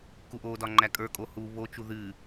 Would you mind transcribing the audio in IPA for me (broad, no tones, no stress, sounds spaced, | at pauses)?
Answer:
k u ʔ o d ɒ ŋ͡ǃ æ kʼ ə˞ kʼ o h u β o t͡ʃ u ð ɨ